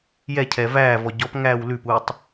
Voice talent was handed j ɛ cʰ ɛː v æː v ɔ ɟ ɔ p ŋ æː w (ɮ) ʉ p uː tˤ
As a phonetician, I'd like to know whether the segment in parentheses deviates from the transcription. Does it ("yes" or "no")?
yes